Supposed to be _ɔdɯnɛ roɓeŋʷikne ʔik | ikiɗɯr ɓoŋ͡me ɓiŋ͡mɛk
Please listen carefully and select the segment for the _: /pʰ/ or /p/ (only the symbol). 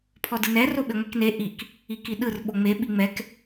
pʰ